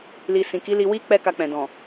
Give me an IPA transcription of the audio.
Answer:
l i˨ s ĩ˨ k i˨˦ l i˧ w i˦ k͡p ɛ˦ k a˧ k͡p ɛ̃˨ d ɔ̃˨

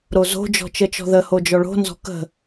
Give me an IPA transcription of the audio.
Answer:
ɾ o z o̤ d͡ʒ ɔ̤ t͡ʃ ə t͡ʃ ɔ̤ ð ə h o d͡ʒ ɔ ɭ o̤ n z ɔ̤ k ə̤

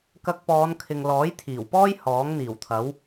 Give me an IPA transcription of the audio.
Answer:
k ɐ˧ k̚ p ɔː˨˧ n kʰ ɪ˨ ŋ l ɔː˨˥ j t̪ʰ iː˨˩ w p ɔː˥ j h ɔː˨˥ ŋ n̪ iː˨˩ w t̪ʰ ɐ˨˥ w

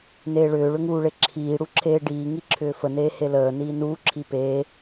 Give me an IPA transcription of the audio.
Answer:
n eː ɭ ʏː ɭ ʏ ŋ uː ɭ e ǁʰ iː ɽ u ǁʰ eː ɖ iː ŋ i ǁʰ ʏː f ə n eː h e l əː n iː n uː ǁʰ i p eː

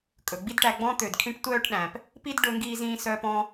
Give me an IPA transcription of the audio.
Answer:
kʼ ɵ˨ ɡ͡b i˦ d ʈ æ˧ ɡ͡b ɔ̃˦ t̪ ø˨ d kʰ ĩ˧ ʈ tʷ œː˦ ʈ ɗ æ̃˨ p | p i˦ d ɖ ɵ˧ ŋ ɡ iː˧ z ĩː˧ s œː˧ p ɔ̃˦

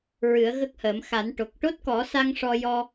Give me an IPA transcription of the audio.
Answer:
ɹ ɨ˨˩˦ ə̯ ɣ ə˦˥ k̚ h əː˨˩˦ m x a˨˩˦ n ʈ o˨˩ k̚ ʈ o˦˥ t̚ k ɔ˨˩˦ s a˧ ŋ ʂ ɔ˧ j ɔ˧

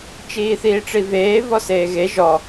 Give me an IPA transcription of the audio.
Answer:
t͡ʃ iː θ iː ʈ͡ʂ i v eː v ɔ s eː ɣ e ʒ ɔ

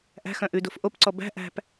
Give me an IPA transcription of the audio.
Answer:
ʔ æ̤ x œ̃ ʔ ʉ d o f ʔ o p ǀ ɔ b æ̤ ʔ æ̤ p

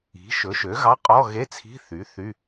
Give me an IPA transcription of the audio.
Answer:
i̤˩˥ ʃ ɵ˩˥ ʃ ø˩˥ ɣ ɑ˧˥˧ qʼ ɔ˧˥˧ ɣ e˧˥˧ t͡sʰ i̤˧˥˧ θ y˩˥ θ y˧˥˧

